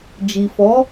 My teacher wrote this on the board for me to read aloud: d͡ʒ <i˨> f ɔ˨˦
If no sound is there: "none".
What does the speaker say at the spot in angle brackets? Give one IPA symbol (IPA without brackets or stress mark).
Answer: i˨